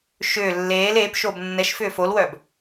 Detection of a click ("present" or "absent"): absent